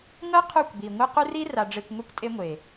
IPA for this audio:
ŋ ɤ˦ qʰ u˦˨ kʷ b i˨ ŋʷ ɯ˦ q u˦ r i˦ r a˨ ɖ͡ʐ e˨ kʷ ŋʷ e˦ kʷ tʼ e˦ ŋʷ e˨

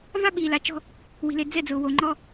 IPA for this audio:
v a˦ ɓ iː˨ l a˨˦ t͡ʃ ɔ̤˦ | w i̤˨ l e˨ d͡z ɛ˦˨ d͡z ʊː˨ w o˨ ŋ͡ǃ ɔ˦

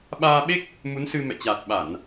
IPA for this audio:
ɓ aː˧ ɓ e˦˥ k̚ | m u˨˦ n s ɨ˧ m ɛ̰˧˨ t͡ɕ aː˨˩ t̚ ɓ a˧˩˨ n

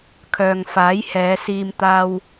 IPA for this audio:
kʰ œː˨ ŋ f aː˨˥ j h ɛː˨˧ s iː˧ m t̪ aː˧ w

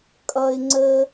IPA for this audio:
kʼ ʌ˥ ɪ̯ ŋ͡ǀ ə˥

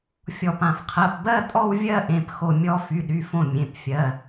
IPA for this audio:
fʲ ɔ˧˩ p ã˧˩ f qʰ ɜ˩˧˩ p b ɜ˥˧ tʼ ɔ˥˧ w vʲ ɜ˥˧ ʔ ẽ˩˧˩ p x o˧˩ mʲ ɔ˥˧ f y˩˧˩ ɗ y˩˧˩ f õ˧˩ mʲ ẽ˩˧˩ p fʲ ɜ˩˧˩

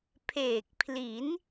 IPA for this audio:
pʰ eː˨˩ k̚ pʰ l i˩˦ n

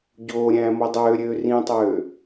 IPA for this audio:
ɟ oː ɾʲ æ̃ː m o dˤ øː ɾʲ øː r ĩ tˤ øː

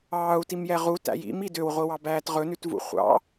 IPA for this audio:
ɑː u̯ t i m j ɛ ʁ u t æ̰ j ḭ m i d ø w ʁʷ i w ɑ b æː t ʁ ɵ n ʉ t v ṵ χʷ ɑ̰

